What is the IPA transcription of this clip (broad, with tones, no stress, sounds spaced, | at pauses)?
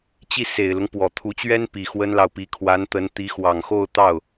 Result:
t͡ɕ i˥˩ s e˨˩ ɪ̯ l ʊ˦ ŋ p w ɔ˨˩ t̪ʰ u˧˥ t͡ɕ ɥ ɛ˥ n p i˨˩ x w ə˥ n l ɑ˨ ʊ̯ p i˧˥ kʰ w a˧˥ n t̪ ə˧˥ n t̪ i˧˥ x w ɑ˨˩ ŋ x o˥˧ ʊ̯ t̪ ɑ˥˩ ʊ̯